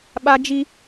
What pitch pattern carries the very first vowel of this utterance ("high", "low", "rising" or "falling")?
high